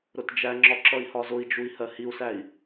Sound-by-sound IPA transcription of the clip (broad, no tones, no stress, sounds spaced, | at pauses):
ɾ ʊ t d͡ʒ æ ŋ͡ǁ ɒ ǁ ʌ i̯ h ɒ z ʊ i̯ d͡ʒ u i̯ h ɜ h i u̯ s æ i̯